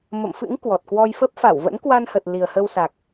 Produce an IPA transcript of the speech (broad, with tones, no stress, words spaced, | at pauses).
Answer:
mə̰˧˨mfɨ̰˧˥ŋ kwɔ˨˩t̚kwɔ˧jfə˦˥p̚ fa˧˩wvə̰˧˥nkwa˧nhə˨˩t̚ li˨˩ə̯hə˧wsa˨˩k̚